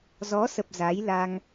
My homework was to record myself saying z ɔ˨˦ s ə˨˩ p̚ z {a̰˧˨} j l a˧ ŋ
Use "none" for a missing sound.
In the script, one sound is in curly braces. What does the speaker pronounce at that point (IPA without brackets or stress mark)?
a˨˦